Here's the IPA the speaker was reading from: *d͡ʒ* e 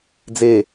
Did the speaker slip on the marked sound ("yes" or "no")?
yes